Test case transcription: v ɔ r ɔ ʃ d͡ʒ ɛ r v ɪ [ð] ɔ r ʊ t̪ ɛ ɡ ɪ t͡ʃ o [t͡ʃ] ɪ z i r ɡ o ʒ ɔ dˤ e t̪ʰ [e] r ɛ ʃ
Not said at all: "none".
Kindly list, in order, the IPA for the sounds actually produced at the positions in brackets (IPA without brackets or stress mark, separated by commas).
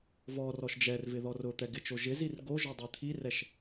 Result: ð, ʒ, i